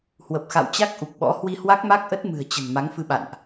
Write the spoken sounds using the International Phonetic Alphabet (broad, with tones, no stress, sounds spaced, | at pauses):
h w ə˨˩ p̚ x a̰˧˨ w t͡ɕ a˦˥ k̚ ʔ u˨˩ k̚ ɓ ɔ̰˧˥ h w i˧ h w a˦˥ k̚ m a˦˥ k̚ ʔ ə˦˥ t̚ m ɨ̤˨˩ ə̯ t͡ɕ ə̤˨˩ n m a˨˦ ŋ f ɨ˧ ɓ a̰˧˨ n ʔ